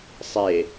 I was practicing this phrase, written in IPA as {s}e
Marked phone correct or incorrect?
incorrect